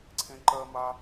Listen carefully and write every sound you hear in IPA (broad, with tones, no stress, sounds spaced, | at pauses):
ǀʰ ẽ˥ ǃ ɜ˥ m a˥